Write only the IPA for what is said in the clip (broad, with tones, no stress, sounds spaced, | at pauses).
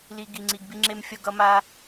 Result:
l i˨ ɡ i˨ ŋ͡ǀ i˧ ɡ b i˦ ŋ͡ǁ e˦ m fʲ ʌ˧ ɡ ʌ˧ m a˧